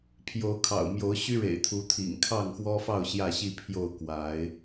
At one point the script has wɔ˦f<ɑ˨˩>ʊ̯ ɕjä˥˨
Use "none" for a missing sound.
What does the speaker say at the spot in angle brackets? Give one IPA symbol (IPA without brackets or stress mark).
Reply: ɑ˥˨